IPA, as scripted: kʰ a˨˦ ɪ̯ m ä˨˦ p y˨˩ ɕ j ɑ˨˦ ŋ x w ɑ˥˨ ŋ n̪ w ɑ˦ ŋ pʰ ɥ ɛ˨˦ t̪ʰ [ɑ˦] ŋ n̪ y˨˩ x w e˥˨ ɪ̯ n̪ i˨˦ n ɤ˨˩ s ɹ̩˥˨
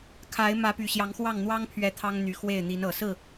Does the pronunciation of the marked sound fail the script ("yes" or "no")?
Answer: no